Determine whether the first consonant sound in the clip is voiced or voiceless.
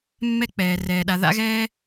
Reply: voiced